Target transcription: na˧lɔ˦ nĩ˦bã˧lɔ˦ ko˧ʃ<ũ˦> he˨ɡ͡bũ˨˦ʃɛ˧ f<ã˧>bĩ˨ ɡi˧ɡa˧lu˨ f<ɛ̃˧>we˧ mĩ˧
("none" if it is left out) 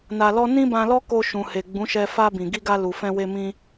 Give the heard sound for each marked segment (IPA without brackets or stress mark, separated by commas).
ũ˨, a˧, ɛ̃˧